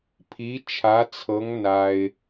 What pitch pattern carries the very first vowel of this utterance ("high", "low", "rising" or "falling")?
rising